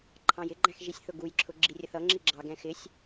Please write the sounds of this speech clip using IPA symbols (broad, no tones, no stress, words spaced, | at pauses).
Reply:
ǃʰɑ̃jɪɡ͡ǃæ̃x ʒisʲθʊɡujǁʰʊ ɡ͡ǁirʲəθʌŋ͡ǁi ɡ͡ǁɑɡɛ̃ xɪsʲ